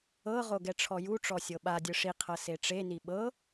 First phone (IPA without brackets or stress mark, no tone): ɤ